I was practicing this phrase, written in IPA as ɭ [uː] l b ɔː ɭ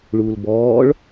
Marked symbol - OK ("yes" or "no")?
yes